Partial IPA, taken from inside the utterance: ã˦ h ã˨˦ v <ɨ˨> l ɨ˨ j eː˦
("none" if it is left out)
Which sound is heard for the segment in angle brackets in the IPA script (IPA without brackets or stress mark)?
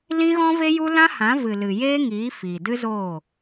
ɨ˨